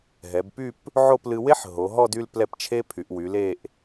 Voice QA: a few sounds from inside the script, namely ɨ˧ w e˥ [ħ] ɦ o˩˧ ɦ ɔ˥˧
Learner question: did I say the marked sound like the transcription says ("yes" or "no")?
yes